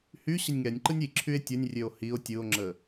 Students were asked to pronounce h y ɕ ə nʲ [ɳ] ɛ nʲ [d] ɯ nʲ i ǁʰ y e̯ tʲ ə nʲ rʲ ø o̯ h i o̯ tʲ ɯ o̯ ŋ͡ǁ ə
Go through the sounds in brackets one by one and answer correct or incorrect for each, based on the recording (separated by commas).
incorrect, incorrect